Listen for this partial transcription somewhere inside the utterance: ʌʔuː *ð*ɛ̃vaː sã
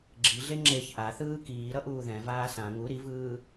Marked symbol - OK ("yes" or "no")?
yes